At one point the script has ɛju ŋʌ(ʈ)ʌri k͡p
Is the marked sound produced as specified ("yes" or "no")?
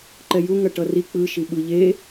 yes